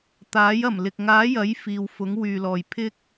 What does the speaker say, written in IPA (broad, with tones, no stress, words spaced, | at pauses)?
t̪aː˨˥jɐ˨˩mlɪ˨k̚ ŋaː˨˥ jɐ˨˥j fiː˨wfʊ˨˥ŋ wyː˨lɔː˨jpʰɪ˥k̚